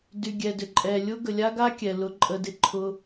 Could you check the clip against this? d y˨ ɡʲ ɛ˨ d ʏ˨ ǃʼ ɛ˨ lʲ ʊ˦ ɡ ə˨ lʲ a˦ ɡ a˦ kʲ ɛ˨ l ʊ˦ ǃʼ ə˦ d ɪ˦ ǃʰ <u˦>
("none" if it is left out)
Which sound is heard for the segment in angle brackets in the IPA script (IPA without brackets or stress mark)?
ʊ˦